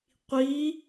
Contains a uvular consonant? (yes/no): yes